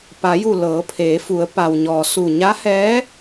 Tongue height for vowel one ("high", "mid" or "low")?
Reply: low